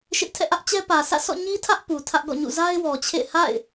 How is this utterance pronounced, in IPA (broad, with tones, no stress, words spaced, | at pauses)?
ʃɪ˦ʔ tʰɛ̰˦˨ʔä˦ʔt͡ɕɛ˦ pä˨sä̰˦˨sɔ̰˦˨ ɲi˦tʰä˦ʔ pu˨tʰä˦ʔɡɔ̰˦˨ɲṵ˦˨ za˦ɪ̯wɔ˨t͡ɕʰḛ˦˨ɪ̯ ha̰˦˨ɪ̯